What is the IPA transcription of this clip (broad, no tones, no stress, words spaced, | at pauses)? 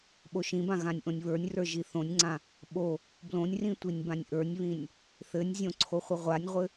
ɓoʃĩbã ɣãnʲʔõnʲβə˞nʲrə˞ ʒiθõnʲŋ͡ǀã | ɓo | blõnʲrĩ tʷinʲbãnʲʔə˞nʲβĩnʲ | θɘnʲzʲõ ǀʰoχʷɘʁʷanʲʁʷɘ